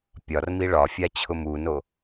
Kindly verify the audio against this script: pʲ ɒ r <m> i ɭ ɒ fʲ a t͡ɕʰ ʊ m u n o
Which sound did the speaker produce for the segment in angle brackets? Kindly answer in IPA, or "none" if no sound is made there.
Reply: m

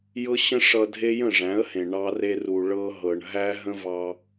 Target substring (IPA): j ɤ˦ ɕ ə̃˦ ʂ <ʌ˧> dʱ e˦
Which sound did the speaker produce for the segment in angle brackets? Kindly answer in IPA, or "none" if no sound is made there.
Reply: ʌ˧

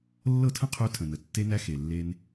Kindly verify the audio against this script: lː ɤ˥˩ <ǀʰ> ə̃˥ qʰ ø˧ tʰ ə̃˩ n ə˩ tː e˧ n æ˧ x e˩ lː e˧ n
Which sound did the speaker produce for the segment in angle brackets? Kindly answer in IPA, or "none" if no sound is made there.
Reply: tʰ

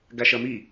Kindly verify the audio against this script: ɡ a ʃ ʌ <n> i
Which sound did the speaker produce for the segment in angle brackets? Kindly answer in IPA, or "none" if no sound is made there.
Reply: m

